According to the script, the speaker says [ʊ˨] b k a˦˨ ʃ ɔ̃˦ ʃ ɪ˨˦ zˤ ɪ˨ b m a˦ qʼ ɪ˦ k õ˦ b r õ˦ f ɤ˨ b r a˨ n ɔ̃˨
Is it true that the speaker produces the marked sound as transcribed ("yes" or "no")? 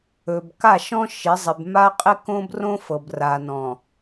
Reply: no